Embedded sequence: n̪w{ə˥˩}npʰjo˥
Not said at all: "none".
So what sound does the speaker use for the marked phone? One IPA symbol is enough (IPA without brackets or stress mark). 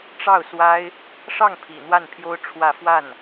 a˥˩